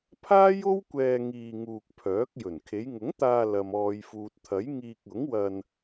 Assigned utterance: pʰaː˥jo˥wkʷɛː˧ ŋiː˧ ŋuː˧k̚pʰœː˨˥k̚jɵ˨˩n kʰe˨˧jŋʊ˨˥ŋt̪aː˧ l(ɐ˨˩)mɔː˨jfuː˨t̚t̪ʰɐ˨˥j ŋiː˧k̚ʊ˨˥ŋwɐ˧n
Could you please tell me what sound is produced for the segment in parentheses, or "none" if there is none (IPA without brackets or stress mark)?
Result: ɐ˨